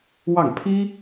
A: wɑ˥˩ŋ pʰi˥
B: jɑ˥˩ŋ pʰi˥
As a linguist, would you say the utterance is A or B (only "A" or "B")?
A